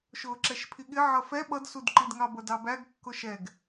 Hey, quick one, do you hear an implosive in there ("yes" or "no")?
yes